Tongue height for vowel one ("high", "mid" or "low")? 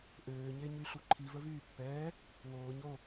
mid